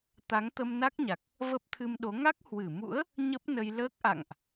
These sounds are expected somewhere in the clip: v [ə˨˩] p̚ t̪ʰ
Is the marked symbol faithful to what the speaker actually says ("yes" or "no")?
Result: no